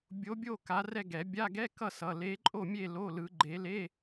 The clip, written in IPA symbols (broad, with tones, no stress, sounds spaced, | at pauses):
bʲ o˨˦ bʲ o˦˨ k a˨˦ r ɛ˦˨ ɡ ɛ˨˩˦ bʲ a˧˥˧ ɡ ɛ˧˥˧ k ʌ˦˨ s ʌ˩˧˩ l e˨˦ ǃʼ o˦˨ mʲ e˦˨ l o˧˥˧ l ɯ˨˦ ɡ͡ǃ e˨˦ l e˧˥˧